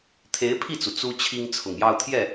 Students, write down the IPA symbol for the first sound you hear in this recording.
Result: t̪ʰ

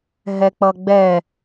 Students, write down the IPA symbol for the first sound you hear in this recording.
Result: ɦ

